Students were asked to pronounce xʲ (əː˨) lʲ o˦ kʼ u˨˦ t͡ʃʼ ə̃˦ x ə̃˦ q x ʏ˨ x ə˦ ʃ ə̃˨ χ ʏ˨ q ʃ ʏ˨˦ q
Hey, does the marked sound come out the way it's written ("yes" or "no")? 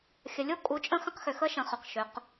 no